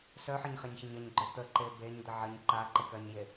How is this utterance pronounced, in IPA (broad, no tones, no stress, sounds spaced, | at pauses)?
s œ ħ ɜ ɲ χ e ɲ ç ə ɲ ə ɲ ɡ͡ǃ œ t̪ ə ǃ e b e ɲ d̪ ə ʕ ɜ ɲ ǃ a ǃ ə k ɜ ɲ j e